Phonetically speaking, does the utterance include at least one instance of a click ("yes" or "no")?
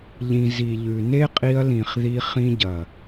no